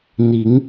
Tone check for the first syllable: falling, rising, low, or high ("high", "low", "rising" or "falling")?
rising